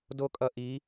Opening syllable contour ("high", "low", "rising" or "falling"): high